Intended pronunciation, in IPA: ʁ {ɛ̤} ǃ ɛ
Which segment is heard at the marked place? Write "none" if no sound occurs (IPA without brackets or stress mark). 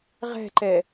ɛ̤